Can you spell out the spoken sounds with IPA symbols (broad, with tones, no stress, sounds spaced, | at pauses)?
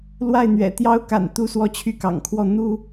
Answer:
l w a˥˩ ɪ̯ n̪ ɥ ɛ̰˨˩ t̪ j ɑ˥ ʊ̯ k a̰˨˩ n t̪ u˥˧ s w ɔ˥˧ t͡ɕʰ y˥˩ k ɑ̰˨˩ ŋ kʰ w ɔ˥˩ n̪ u˥